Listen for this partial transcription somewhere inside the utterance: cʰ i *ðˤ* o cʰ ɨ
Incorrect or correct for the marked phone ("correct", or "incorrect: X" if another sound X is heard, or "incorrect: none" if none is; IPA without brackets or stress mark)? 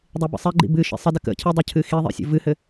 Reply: incorrect: dˤ